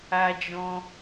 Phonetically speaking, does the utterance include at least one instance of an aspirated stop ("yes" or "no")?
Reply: no